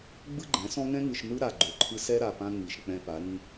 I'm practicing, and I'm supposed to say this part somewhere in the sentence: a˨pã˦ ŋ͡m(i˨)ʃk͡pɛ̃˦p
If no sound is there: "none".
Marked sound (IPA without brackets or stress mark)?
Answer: i˨